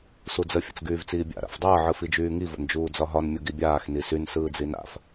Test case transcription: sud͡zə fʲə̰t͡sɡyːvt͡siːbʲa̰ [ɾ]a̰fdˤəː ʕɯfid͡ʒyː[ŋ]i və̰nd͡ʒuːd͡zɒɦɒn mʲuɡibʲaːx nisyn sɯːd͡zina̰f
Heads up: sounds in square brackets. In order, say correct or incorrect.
correct, correct

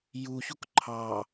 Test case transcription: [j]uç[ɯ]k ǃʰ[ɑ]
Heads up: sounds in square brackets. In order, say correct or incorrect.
correct, incorrect, correct

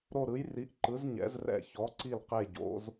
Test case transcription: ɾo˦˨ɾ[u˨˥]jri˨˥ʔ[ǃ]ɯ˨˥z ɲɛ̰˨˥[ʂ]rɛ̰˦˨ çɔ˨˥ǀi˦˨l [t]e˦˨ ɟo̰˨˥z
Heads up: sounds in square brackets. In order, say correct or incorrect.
incorrect, correct, incorrect, incorrect

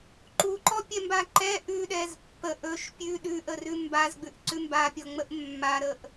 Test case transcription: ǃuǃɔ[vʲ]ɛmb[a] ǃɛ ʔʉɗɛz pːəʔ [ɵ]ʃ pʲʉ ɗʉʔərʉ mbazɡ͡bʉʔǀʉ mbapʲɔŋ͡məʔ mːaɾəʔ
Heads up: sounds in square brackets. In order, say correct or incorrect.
incorrect, correct, correct

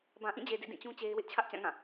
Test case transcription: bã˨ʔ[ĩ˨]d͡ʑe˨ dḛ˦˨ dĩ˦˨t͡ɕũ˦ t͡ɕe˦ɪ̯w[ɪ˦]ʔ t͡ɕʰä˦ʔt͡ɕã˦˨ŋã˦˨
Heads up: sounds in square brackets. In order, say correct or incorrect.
incorrect, correct

